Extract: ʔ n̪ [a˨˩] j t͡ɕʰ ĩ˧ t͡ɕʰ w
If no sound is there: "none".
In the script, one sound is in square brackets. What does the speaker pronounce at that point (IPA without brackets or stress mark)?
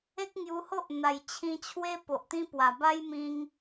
a˨˩